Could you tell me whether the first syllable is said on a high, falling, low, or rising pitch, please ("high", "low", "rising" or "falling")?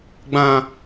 low